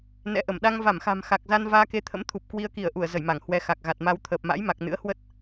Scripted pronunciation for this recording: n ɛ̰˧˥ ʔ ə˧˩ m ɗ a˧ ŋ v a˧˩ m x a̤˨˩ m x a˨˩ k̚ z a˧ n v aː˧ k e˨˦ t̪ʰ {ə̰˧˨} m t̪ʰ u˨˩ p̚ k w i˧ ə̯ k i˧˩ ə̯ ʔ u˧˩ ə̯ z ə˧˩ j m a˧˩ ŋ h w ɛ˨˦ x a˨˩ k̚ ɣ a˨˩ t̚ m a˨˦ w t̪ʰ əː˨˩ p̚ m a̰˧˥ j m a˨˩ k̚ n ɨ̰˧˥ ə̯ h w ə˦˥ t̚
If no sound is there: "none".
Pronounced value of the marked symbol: ə̰˧˥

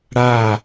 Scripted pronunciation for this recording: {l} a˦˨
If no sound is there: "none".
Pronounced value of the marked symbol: ɽ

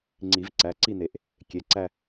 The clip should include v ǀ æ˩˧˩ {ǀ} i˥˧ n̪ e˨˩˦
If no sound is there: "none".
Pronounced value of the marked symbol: ǀ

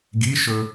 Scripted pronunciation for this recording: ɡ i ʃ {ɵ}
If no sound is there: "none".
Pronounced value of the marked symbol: ɵ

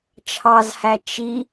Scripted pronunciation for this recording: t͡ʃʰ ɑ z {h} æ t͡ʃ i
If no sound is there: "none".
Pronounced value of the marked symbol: h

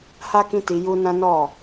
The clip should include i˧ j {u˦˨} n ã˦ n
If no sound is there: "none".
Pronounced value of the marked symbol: u˦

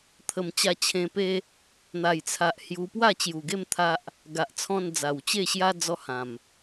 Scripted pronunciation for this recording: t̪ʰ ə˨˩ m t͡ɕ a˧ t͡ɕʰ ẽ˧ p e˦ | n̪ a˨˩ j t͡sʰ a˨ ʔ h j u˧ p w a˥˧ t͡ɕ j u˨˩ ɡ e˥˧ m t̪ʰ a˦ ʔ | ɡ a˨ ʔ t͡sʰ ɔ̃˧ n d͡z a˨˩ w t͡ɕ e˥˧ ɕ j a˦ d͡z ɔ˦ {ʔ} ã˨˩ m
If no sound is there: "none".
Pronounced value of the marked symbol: h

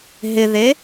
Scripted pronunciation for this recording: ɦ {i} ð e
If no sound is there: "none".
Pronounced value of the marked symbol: ɪ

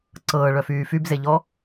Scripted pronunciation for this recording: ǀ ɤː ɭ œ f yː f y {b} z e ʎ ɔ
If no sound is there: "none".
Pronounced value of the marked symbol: b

